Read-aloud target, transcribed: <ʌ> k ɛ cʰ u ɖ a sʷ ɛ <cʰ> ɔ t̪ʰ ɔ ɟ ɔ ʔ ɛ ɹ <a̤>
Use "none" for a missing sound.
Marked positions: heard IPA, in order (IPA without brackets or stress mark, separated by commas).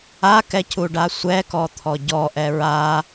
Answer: a, k, a